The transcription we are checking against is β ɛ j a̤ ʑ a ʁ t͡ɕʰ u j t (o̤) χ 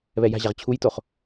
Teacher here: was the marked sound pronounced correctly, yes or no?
no